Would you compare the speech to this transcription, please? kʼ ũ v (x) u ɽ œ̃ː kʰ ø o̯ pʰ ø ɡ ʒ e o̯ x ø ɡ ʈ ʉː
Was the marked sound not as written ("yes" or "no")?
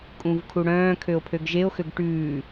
yes